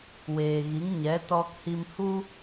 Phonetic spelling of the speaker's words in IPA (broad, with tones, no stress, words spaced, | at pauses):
weː˨ɣi˨˦ŋɲɛ˨˦ tɔ˧khi˧mhu˦